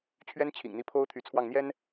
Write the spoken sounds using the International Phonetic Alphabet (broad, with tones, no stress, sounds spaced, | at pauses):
t͡ɕʰ ɥ ɛ˥ n t͡ɕʰ ḭ˨˩ ŋ n̪ i˧˥ pʰ o˥ ʊ̯ t̪ʰ y˧˥ t͡sʰ w ɑ˥˩ ŋ n̪ j ɛ˥ n